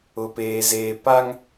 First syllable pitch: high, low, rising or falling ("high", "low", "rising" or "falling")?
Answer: low